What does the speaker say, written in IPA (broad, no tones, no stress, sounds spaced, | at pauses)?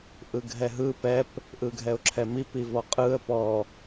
ʔ ɯ ɡʱ ɛ ɦ ɯ p ɛ p | ʔ ɯ ɡʱ ɛ ʊ̯ ǁʰ ɛ m i p i v ɔ qʼ ɯ ə̯ p ɔ